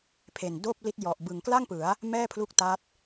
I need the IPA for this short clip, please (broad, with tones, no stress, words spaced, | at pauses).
pʰe˨˩ndoː˥˩p̚li˦˥t̚ jɔ˨˩ʔbɯ˨˩ŋkla˥˩ŋpɯ˩˦a̯ | mɛː˥˩pʰlu˦˥k̚ta˦˥t̚